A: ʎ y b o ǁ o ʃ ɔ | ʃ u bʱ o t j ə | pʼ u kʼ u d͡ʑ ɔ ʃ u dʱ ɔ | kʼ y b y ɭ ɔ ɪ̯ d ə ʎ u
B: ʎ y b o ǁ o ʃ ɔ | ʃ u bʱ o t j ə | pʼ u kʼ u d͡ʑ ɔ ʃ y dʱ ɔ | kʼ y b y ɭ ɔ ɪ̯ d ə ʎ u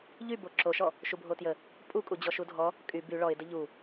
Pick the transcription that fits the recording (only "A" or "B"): A